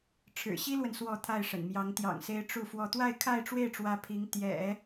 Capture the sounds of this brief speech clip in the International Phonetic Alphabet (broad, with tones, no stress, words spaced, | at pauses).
ʈ͡ʂʰɻ̩˨˩ɕi˥lwə˨n swɔ˥˧t̪ʰa˥˩ɪ̯ʂə̰˨˩nmjɑ˧˥ŋ t̪jɑ̰˨˩ŋse˧˥ɪ̯ ʈ͡ʂu˥˧fwɔ˥˧ t̪wa˥˧ɪ̯kʰa˥˧ɪ̯ʈ͡ʂwe˥˩ɪ̯ʈ͡ʂwä˧˥ pʰi˧˥ŋ t̪jɛ̰˨˩˦